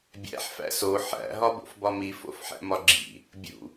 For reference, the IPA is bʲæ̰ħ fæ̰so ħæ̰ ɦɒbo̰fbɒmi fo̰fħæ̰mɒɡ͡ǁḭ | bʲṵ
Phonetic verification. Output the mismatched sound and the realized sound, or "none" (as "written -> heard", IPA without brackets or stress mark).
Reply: none